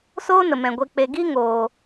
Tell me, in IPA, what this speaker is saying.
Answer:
soː˦nə˨mɛ̃˨ ɡʷe˨k͡pe˨ ɡi˦ŋoː˨

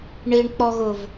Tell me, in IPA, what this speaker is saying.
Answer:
ɳiɳk͡pɔɣʊv

